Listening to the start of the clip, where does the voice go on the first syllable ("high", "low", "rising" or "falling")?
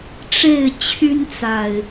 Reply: falling